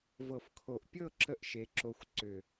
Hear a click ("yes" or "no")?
yes